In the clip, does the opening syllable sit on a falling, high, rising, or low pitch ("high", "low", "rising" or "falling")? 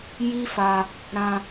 high